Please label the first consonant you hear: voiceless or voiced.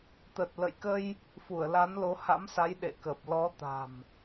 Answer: voiceless